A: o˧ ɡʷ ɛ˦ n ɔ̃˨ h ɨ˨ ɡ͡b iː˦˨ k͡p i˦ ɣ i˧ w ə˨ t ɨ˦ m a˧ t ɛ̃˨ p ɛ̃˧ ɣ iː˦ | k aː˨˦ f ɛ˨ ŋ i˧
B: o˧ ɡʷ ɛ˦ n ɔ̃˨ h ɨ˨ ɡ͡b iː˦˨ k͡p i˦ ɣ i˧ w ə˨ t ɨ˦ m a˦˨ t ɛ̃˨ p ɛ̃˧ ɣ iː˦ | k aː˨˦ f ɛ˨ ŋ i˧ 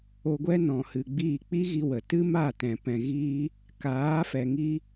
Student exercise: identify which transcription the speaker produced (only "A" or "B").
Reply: B